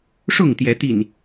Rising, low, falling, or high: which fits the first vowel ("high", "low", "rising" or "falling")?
falling